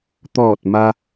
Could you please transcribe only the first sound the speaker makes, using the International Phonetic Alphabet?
t̪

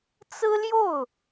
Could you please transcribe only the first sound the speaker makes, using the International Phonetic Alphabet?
t͡s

